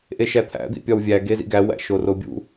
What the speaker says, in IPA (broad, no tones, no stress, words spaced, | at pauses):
ʔeʃæt̪ʰæ̰ d̪ḭpʲɒwvʲæ ɡezḭɡæ wæ̰ʃorobʲṵ